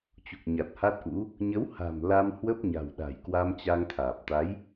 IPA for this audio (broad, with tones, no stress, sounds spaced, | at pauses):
t͡ɕ u˨˩ k̚ ɲ a˨˩ t̚ h a˦˥ t̚ ʔ ṵ˧˥ | ɲ ə˨˦ w h a̤˨˩ m l a˧ m h w ə˦˥ p̚ ɲ a̤˨˩ w ɗ a̤˨˩ j k w a˧ m t͡ɕ a˧ ŋ t̪ʰ aː˨˩ p̚ t̪ a˨˦ j